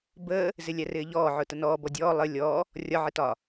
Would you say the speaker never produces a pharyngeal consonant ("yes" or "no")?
no